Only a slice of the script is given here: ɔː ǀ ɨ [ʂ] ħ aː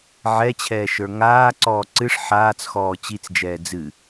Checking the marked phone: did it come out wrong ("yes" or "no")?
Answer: no